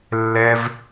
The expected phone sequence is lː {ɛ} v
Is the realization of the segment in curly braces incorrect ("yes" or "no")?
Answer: no